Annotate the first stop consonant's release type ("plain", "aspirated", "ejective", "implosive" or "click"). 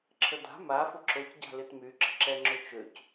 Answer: click